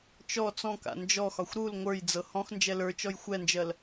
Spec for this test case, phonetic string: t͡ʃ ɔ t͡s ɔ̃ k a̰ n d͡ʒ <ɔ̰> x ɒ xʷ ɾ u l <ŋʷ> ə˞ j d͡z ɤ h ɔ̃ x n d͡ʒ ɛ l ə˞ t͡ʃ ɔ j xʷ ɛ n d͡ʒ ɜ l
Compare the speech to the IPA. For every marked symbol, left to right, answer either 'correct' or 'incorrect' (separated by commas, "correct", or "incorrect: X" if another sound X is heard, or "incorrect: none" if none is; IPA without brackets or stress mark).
incorrect: ɔ, correct